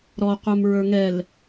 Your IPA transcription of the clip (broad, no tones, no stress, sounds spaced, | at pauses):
ɾ ɔ qʷ ɛ m ɹ ə˞ ŋ ɛ l